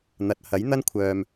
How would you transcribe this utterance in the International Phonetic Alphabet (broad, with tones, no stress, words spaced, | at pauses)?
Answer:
n̪ɐ˨t̚hɐ˨˥jn̪ɐ˥nkʷʰœː˨m